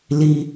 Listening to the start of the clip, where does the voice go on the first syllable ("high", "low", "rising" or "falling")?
low